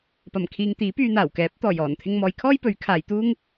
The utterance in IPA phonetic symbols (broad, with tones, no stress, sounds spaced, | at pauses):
p ɐ˨˩ m kʰ iː˨ ŋ t̪ iː˨˥ p yː˧ n̪ aː˨˩ w k ɛː˨˥ p̚ t̪ ɔː˨˩ j ɔː˨˩ n t̪ʰ ɪ˧ ŋ m ɔː˨˧ j kʰ ɔː˥ j p ɵ˨˥ ɥ kʰ aː˨˧ j t̪ uː˥ ŋ